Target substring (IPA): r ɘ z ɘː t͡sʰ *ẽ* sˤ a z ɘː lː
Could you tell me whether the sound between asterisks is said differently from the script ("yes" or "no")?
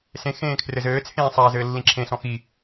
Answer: yes